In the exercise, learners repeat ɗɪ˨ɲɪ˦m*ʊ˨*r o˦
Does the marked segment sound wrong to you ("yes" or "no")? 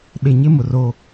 no